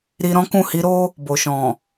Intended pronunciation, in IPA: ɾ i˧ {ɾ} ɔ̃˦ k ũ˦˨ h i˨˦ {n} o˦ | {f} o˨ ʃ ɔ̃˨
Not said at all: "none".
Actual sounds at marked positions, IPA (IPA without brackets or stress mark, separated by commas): ɾ, ɾ, b